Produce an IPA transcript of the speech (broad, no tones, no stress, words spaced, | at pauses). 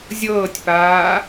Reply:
zʲɤːtʲpaː